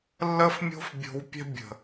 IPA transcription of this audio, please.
lː ə˦ f mʲ o̤˦ f bʲ o̤˧ w pʲ ɛ̤˦ bʲ ə̤˨

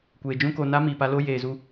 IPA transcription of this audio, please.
kʷ eː˨ d͡ʒ ũ˦ k o˧ n a˦ m iː˨ p a˧ l o˦ j eː˨ z u˧

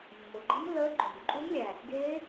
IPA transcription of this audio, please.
mː ʊ˨ ɡ͡ǃ i˦˥ m lː əː˦˥ ɡ͡ǃ o˨ m ǃʼ u˦˥ m lʲ æ˨ | ɡ eː˦˥

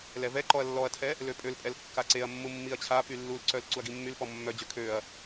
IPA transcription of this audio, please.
l ɛ v ɛ ǃ ɔ ɐ̯ lː ɔ ɐ̯ tʰ ɛ | l ø pʼ ø l pʼ ɛ l kː a ǀ e ɐ̯ mː u mː i ɐ̯ t͡ɕʰ a p y lː u l ǀ œ l ǀ u ɐ̯ ɡ i mː y l p ɔ mː œ d͡ʑ ø kʰ ø ɐ̯

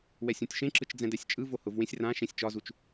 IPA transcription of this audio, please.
w ɛ sʲ õ tʲ ʃ ẽ ǁ ɯ t͡ʃ d͡z ɛ̃ d ɛ sʲ t͡ʃʼ ɯ v o h ʊ v w ẽ sʲ r ã ʃ ẽ sʲ t͡ʃ ɒ z u t͡ʃ

